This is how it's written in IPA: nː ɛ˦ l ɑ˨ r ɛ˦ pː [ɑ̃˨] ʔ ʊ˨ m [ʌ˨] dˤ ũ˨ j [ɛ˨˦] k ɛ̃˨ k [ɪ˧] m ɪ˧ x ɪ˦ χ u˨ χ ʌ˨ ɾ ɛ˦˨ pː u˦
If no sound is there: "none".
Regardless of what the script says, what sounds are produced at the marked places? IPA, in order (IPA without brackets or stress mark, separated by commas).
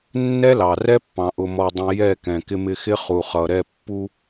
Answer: ɑ̃˨, ɔ˨, ɛ˦˨, ɪ˧